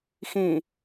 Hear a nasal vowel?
yes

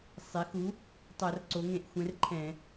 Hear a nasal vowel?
yes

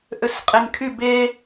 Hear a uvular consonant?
yes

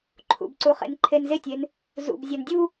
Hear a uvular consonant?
yes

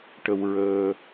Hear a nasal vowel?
no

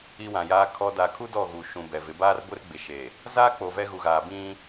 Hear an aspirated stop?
yes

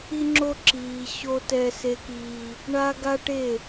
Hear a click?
yes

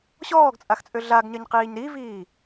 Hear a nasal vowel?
no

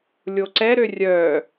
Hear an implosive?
no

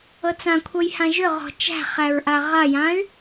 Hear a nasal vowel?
yes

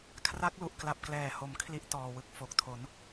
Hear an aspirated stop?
yes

